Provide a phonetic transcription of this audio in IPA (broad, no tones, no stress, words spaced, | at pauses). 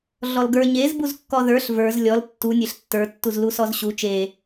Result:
ɮɔlɡə˞ ɲez buzkːɔðə˞ɬ və˞z lʲɔl tːu nʲeɬtːə˞ tːuzlusɔzɕu t͡ʃe